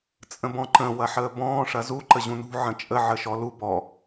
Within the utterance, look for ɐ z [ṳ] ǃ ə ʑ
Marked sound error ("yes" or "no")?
yes